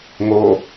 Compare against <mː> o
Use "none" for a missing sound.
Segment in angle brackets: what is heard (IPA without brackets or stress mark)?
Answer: ŋ